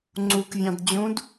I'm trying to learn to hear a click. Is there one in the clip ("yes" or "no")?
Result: yes